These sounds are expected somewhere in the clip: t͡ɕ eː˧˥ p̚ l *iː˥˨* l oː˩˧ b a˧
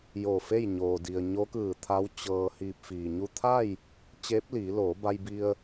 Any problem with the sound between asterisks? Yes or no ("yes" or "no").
yes